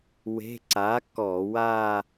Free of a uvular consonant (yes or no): yes